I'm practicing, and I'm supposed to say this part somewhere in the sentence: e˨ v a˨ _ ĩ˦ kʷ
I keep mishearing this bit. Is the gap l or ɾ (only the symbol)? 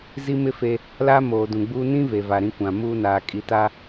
ɾ